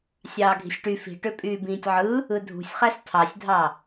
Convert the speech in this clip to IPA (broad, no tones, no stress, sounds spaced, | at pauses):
sʲ ɑː ɡʱ i̤ sʲ ʈ y f i̤ ʈ ø pʼ yː b ĩː tʲ ʕ ɯ | ɯ dʱ ṳ sʲ χ æ s tʰ ɑ sʲ dʱ ɑ